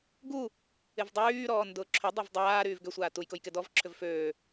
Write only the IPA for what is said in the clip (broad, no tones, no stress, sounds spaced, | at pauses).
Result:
ɡ u | ɪ v dˤ yː ɾ ɔː n d ʊː ǁʰ ʏ dˤ a v dˤ aː ɾ yː v ɡ ʏ sʷ aː t u j k ʊ j k ɪ d ɔ v ǁʰ ʏ v f øː